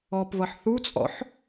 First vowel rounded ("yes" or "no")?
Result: yes